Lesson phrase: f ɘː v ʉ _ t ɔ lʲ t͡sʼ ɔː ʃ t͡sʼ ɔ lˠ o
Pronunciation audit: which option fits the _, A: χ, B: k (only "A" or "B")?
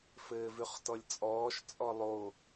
A